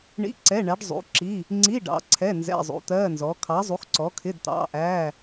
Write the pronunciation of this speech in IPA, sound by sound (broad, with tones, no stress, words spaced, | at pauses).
ɳḭ˧˥˧ ǀɛ˧˥˧ɳæ˨˥ɖzˤṵ˨˥ǁi˧˥˧ | ŋ͡ǀi˧˥˧ ɖɑ̰˨˥ǀʰɛ˧˥˧ nzɛ̰˧˥˧zˤṵ˨˥t̪ɜ˧˥˧nzɔ˨˥ kʰɑ˨˥zˤu˨˥xǀɔ˨˥kʰɪ˧˥˧d t̪ɑ̰˧˥˧ʔæ˧˥˧